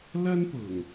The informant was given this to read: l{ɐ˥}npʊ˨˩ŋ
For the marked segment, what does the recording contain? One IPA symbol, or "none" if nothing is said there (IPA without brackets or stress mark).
ɐ˥